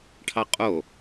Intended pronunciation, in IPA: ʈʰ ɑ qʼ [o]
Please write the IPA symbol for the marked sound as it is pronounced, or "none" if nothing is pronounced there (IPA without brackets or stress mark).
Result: o